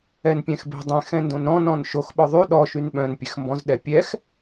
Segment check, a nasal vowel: present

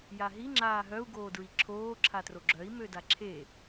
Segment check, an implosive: absent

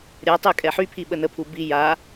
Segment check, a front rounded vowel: present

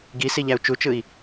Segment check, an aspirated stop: absent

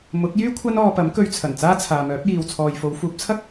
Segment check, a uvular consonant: absent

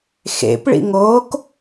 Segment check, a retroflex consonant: present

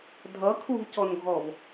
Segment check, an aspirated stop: present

